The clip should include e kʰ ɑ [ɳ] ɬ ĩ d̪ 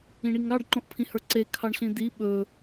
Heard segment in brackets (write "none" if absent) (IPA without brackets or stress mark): ɳ